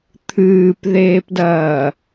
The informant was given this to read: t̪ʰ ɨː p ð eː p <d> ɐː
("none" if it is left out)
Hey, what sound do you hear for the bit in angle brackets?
d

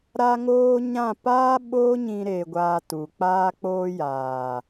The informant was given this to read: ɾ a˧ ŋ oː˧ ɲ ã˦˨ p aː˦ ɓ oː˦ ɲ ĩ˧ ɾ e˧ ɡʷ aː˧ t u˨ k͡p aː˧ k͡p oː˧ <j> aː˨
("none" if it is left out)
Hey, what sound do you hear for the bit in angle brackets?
j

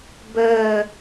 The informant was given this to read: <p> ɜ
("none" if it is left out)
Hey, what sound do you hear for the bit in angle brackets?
b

